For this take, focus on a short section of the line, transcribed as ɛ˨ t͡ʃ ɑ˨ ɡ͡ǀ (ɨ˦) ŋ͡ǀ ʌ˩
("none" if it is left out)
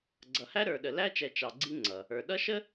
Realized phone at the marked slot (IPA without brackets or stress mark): i˦